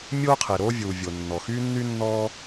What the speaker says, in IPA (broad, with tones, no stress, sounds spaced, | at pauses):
mʲ oː˥ qʰ e˩ ɾ oː˥ vʲ uː˩ vʲ o˩ nː ɔ˩ x yː˥ nː y˥ nː ɔː˥